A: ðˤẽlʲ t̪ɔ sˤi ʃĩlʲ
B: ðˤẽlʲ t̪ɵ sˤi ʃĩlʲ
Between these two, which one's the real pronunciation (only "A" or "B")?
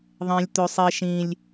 B